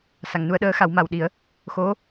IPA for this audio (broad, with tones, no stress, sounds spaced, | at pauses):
s a˨˩˨ ŋ n u˧ ə̯ ɗ əː˧˥ x a˨˩˦ w m a˨˩ w ɗ i˨˩˦ ə̯ | x o˧˥